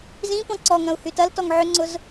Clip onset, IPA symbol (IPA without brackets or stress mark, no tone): z